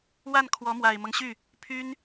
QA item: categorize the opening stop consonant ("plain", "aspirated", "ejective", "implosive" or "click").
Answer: aspirated